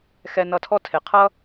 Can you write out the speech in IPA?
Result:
xɛ˧nʌ˧tʰɔ˥ tʰe˩qʰʌ˥

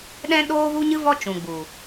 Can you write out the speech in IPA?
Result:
ɗɛ̃˦ ɗoː˦vu˦ɲɨ˦vɔ˦ t͡ʃũ˨ɡ͡bu˨

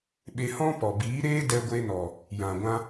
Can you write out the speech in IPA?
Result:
ɓe˧hɔ̃˦ pɔ˨biː˨˦ɾeː˦ dɛ˧ɡʷe˧nɔ˨ | jã˨ɡʷã˧

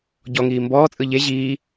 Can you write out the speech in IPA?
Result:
ɟɔŋiː mbɔːt͡sʼɯ ʎe ʑiː

